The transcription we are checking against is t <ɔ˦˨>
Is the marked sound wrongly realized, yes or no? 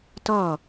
no